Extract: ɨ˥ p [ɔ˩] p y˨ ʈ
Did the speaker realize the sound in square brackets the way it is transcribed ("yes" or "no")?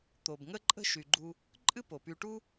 no